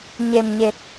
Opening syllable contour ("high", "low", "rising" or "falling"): low